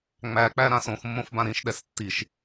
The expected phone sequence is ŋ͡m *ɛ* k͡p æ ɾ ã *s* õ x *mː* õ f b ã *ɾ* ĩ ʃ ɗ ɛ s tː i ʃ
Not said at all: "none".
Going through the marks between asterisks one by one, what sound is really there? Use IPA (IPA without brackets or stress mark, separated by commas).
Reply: æ, s, mː, ɾ